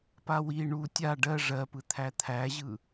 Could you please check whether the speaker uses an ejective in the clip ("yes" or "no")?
no